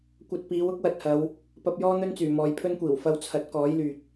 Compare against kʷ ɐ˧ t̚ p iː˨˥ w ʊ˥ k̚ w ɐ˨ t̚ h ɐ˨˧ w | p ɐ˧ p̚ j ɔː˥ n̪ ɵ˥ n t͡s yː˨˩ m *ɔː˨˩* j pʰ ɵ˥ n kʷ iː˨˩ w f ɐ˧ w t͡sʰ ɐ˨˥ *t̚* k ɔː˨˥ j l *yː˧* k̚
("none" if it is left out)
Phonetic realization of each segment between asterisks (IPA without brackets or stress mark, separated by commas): ɔː˨, t̚, yː˨